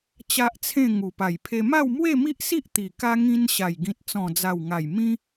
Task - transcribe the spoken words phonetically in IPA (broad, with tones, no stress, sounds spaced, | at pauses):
t͡ɕ a˦ ʔ t͡sʰ ẽ˥˧ ŋ u˨˩ p a˨˩ j pʰ e˧ m a˥˧ w m w e˥˧ m i˦ ʔ s i˦ ʔ t̪ i˨˩ k a˧ ŋ ĩ˧ n ɕ a˨˩ j ɡ ĩ˨ t̚ t͡s ɔ̃˨˩ d͡z a˨˩ w ŋ a˨˩ j m ĩ˦